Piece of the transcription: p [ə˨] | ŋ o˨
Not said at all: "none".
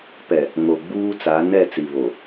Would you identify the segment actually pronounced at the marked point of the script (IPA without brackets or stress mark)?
ɛ˨